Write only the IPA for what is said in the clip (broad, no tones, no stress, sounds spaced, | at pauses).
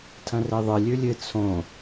tʰ ɐ̃ r e ðˤ ɨ lʲ ʉ lʲ ɨ t͡sʰ õ